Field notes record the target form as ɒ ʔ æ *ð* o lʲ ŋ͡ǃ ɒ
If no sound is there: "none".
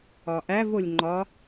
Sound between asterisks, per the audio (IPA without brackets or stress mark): v